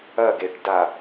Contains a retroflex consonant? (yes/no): yes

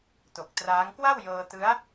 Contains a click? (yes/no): no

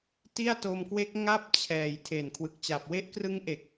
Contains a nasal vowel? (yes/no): no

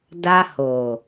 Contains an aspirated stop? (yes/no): no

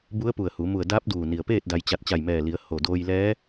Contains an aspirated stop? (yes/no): no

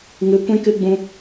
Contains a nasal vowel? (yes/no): yes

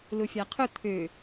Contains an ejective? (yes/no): no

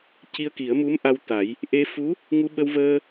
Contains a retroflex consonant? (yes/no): no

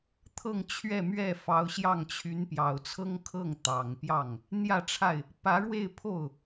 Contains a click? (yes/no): no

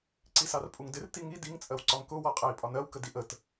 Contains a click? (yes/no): yes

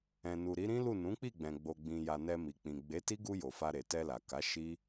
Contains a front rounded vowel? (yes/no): no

